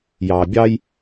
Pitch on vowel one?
low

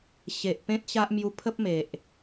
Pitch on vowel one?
low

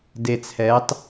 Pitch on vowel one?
low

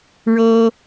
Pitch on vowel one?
high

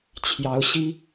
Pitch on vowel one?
rising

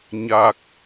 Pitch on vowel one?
low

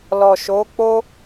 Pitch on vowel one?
low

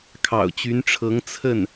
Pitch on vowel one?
low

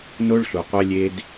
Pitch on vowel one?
high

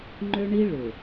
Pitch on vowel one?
high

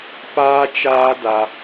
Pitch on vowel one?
high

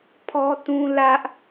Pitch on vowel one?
high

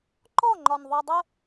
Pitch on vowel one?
falling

